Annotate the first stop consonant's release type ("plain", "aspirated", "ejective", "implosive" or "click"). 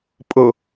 ejective